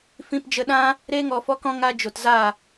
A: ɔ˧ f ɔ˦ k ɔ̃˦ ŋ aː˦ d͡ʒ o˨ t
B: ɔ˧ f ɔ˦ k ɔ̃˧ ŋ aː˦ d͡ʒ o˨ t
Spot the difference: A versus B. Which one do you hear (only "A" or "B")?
A